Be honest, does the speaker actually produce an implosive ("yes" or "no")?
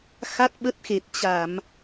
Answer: yes